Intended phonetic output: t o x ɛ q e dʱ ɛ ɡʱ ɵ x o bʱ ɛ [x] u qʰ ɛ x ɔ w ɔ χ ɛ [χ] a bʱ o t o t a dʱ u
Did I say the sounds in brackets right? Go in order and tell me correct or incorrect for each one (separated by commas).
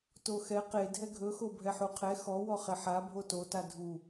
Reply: incorrect, incorrect